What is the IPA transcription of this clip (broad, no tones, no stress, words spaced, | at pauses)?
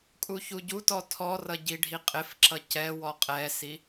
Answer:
kʼuçuɟutɔ tʰɔrʌ ɟiɖʱiqʼɪfǁʌ cɛwɔ qʼɛsi